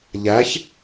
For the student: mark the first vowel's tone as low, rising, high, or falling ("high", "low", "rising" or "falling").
rising